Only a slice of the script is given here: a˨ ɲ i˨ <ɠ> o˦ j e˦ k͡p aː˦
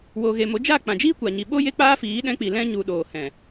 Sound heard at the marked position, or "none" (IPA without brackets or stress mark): ɓ